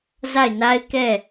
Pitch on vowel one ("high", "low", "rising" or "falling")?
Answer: falling